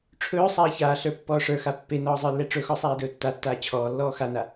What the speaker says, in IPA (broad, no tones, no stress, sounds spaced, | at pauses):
ʈ͡ʂʰ ɵː sˤ aː ç aː ɬ ə˞ pː ɔː ʂ ə˞ x a pː e n ɔː zˤ ə˞ lː ɛ ʈ͡ʂ ɵ x ɔ sˤ aː d ɵː tː a tː aː t͡ɕʰ ɔː lː ɔː x a n a